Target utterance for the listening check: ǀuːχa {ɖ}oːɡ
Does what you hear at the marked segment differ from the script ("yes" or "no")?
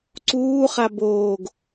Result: yes